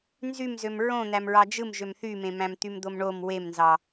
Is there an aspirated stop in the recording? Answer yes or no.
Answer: no